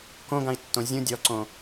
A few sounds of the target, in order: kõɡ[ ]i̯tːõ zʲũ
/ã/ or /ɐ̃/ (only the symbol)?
ã